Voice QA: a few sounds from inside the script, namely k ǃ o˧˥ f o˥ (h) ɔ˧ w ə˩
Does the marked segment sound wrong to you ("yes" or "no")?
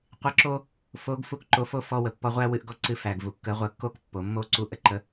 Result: yes